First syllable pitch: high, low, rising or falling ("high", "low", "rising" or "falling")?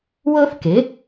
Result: high